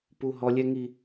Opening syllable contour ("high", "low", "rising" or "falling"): high